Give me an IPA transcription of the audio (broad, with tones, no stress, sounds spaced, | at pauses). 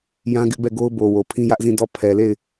j ã˦ ɡ ɪ˦ ʔ b ɛ˦˨ ɡ o˦ ʊ̯ b o˨ w o˨ pʰ ĩ˦ j ä˦ ʔ z ĩ˦˨ d ɔ˦˨ pʰ ɛ˨ l e˦˨ ɪ̯